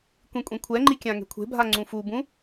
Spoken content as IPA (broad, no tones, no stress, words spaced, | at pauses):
kʷĩkʷʼẽkʷʰɛŋ͡ǃi kʲãŋe̤kʷʰe̤bʱa ŋ͡ǀũfubũ